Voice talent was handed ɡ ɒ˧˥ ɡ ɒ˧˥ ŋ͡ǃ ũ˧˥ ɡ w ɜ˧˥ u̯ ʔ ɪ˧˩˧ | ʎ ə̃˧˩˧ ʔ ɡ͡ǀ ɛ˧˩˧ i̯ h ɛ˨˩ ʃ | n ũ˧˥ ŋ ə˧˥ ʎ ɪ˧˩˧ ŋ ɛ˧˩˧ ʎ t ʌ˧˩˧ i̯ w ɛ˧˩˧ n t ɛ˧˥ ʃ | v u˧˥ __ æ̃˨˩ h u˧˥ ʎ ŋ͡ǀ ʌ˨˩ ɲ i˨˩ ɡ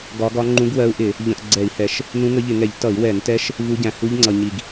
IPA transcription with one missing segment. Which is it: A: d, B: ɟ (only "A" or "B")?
B